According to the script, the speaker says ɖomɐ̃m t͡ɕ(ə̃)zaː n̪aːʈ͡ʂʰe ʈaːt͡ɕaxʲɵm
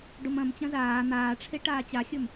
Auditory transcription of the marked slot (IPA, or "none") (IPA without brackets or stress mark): ɐ̃